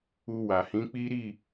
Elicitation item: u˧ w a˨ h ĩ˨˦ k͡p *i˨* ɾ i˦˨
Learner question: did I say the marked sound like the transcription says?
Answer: no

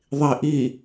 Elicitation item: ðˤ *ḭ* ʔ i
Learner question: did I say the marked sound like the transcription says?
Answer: no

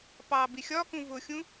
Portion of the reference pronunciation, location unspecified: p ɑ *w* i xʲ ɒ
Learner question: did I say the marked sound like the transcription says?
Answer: no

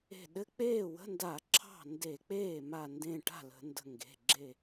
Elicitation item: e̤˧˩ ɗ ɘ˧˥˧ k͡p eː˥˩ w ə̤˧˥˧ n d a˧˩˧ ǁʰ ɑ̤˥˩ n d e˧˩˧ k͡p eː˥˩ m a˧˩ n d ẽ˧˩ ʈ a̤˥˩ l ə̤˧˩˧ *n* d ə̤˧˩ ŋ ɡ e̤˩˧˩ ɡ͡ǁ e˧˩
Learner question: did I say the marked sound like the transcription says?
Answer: yes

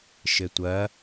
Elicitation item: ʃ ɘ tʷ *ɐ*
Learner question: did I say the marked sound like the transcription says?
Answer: yes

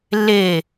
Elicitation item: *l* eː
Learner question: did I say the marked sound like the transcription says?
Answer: no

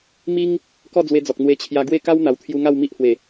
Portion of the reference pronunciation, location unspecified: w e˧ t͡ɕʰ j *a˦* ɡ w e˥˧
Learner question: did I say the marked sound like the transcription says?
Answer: no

